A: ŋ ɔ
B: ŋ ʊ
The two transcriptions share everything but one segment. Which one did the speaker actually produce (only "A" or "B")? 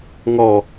A